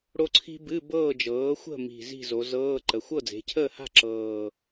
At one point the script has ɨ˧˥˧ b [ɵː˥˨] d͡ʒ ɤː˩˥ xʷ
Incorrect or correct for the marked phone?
incorrect: ɤː˥˨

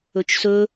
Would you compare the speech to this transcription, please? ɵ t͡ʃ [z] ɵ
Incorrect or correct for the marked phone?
incorrect: s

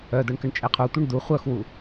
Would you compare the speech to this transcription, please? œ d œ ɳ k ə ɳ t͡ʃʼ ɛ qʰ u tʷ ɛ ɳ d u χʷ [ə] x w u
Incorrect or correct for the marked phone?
incorrect: œ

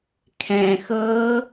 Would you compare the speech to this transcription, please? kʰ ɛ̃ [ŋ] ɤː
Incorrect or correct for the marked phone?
incorrect: x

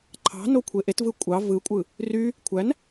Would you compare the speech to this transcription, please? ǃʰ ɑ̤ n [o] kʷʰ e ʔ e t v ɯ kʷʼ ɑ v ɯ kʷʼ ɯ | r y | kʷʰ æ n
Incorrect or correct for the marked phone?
correct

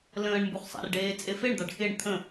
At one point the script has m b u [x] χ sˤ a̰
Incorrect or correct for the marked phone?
incorrect: none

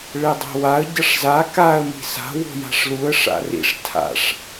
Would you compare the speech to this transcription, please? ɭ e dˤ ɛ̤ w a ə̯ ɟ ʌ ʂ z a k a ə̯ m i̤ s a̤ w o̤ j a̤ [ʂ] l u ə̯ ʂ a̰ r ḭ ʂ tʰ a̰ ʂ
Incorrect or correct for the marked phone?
correct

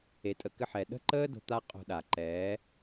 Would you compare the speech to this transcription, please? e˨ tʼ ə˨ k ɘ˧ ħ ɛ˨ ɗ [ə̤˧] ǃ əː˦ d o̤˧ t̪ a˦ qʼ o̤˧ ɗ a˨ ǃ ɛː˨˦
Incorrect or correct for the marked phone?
incorrect: ə̤˦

